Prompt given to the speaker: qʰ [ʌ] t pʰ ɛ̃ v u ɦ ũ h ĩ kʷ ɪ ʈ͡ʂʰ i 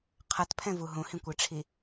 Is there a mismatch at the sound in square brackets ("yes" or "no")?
no